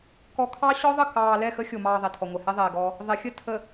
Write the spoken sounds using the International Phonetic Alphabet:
k ɔ˨ kʰ ɑ˦ ɕ ɔ˦ ðˤ ə˦˨ k ɑː˨ l ɛ˦˨ x ə˦ xʲ o˨ m ɑː˨ ðˤ ɛ˨ tʰ ɔ˨ ŋʷ ɛ˨ h ɛ˦ ðˤ ɛː˨ ɡ ɔː˦ | ðˤ ɛ˨ xʲ ə˦˨ tʰ ə˨

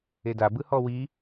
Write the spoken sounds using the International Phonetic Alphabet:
e d a b ɯ h ɔ w i

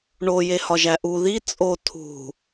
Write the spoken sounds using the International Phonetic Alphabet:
ɳ o j e h ɒ ʒ æ ʔ u ð i t͡sʼ o tʰ ṳ

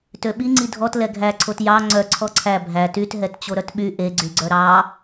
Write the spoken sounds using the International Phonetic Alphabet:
t ø ɓ i ŋ͡ǀ i dʱ ɔ t l ɛ ɡʱ æ ǀʰ o t j ɑ ŋ͡ǀ œ ǀʰ ɔ ǀʰ æ bʱ æ t y t ɦ ɛ t t͡ɕ o ɾ œ t ɓ y ʔ e ɡ͡ǀ y ɡ͡ǀ œ ɾ ɑ

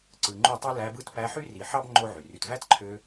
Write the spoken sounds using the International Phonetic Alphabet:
ǀ ɯ˨ ŋ͡ǃ u˦˨ tˤ ɯ˦ l æ˧ b ɯ˦˨ t p æ˧ ħ y˦ r i˨ ħ ɑ˦ b ŋ͡ǃ o˦ ʕ y˨ r y˨ t v æ˦ t ǃʰ ø˧

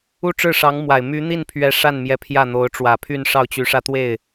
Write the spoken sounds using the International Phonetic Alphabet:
u˥˧ ʈ͡ʂ ɻ̩˥˩ ʂ ɑ˧˥ ŋ m w a˨˩ ɪ̯ m y˧˥ n̪ i˥˩ n pʰ ɥ ɛ˧˥ ʂ a˥˩ n m j ɛ˧˥ pʰ j ä˥˩ n̪ o˧˥ ʊ̯ ʈ͡ʂ w ä˨˩ pʰ y˥˧ n ʂ ɑ˥˩ ʊ̯ t͡ɕ y˧˥ ʂ ä˥˧ t̪ w e˥˩ ɪ̯

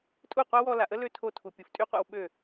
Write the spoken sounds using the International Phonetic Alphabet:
tʼ u˦˨ qʷ a˦ w ɔ˧ l a˨ ʔ ə˦ l ø˦ tʰ o˧ tʰ u˨ pʲ u˨ f tʼ y˦ qʷ a̰˧ w ɓ ø˦˨

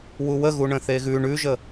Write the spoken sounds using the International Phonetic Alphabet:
w u w ə ɣ u ɳ ə̃ θ e ɣ ʉ ɳ ʉ ʒ ə

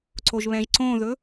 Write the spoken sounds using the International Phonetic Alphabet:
ǀ o ʒ β ɛ̃ ʒ ǀ õ ð ɵ

